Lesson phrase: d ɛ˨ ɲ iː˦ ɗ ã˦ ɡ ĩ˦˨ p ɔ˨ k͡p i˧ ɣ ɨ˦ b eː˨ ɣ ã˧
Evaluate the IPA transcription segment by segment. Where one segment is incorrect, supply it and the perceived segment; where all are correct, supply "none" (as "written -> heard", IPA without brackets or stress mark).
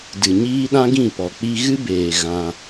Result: ɛ˨ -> ɨ˨